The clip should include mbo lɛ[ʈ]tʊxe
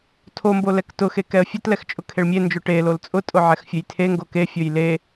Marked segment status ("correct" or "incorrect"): incorrect